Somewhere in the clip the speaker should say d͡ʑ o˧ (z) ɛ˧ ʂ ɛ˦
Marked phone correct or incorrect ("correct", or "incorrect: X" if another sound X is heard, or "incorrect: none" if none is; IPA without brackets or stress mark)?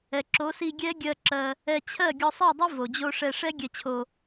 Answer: incorrect: ʂ